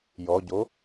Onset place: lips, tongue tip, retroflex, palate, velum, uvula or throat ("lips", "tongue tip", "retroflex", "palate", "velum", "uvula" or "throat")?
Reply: palate